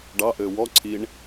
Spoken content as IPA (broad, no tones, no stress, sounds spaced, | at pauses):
ɖ ɑ ʔ ɘː w ɔ ǀʰ i ɳ